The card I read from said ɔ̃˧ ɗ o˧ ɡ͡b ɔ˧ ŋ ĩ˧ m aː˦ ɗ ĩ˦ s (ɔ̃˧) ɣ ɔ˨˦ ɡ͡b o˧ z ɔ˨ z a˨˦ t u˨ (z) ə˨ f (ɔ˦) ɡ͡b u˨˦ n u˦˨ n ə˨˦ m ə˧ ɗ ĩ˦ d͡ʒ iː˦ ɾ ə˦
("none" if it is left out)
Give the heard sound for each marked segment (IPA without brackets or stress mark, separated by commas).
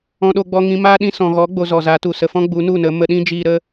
ɔ̃˨, s, ɔ̃˦